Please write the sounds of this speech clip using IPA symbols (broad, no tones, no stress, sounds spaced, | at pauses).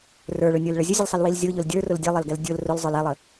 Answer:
r ə˞ ɭ ʊ nʲ ə˞ l ɭ ə zʲ ʊ zʲ ʊ l sˤ i l w i l zʲ ʊ ʎ ʊ l dʲ ə˞ r ʊ l dʲ ɛ lˠ ɛ l ɡ ɛ l dʲ ʊ l r ʊ l zˤ ə˞ l ɛ lˠ ə